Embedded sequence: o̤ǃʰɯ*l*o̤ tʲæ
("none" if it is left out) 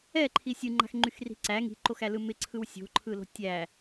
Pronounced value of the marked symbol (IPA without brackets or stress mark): l